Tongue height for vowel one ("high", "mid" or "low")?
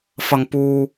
low